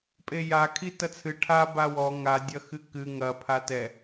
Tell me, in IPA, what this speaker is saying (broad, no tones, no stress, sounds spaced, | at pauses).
pʼ e j a kʰ i t ɐ t͡sʰ ɨ ʈʰ a b a w ɔ ŋ a dʲ ɐ x ɨ k ɨ ŋ ɐ pʰ a t ɛ